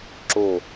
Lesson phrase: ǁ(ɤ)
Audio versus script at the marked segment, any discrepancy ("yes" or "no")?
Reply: yes